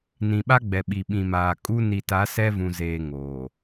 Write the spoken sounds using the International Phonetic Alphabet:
n ĩ˨ ɓ a˦ ɡ͡b ɛ˨ ɓ i˨ ɓ ĩ˨ m aː˨ kʼ u˦ n i˨ t a˨˦ s ɛ˦ v ũ˨ z eː˨ ŋ oː˨

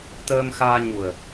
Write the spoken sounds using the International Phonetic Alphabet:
t̪ əː˧ m x aː˧ ɲ u˨˩ ə̯

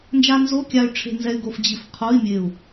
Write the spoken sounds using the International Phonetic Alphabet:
n d͡ʒ a˧ n z o˧˥˧ kʲ a˧ y̯ ʈ͡ʂʰ e̤˧ n z ɛ˧ y̯ ɡ o˧ f d͡ʑ i˧˩ f qʰ o˧˥˧ i̯ mʲ e˧˩ u̯

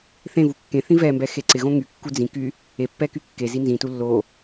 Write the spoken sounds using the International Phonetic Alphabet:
θ ẽ v u kː ẽ θ ĩ v ɛ m b ɛ x e ǀ ɪ ɣ õ ŋ y kː u d͡z ĩ k y | e pː ɛ k y kː e z i n z ĩ t u lː o

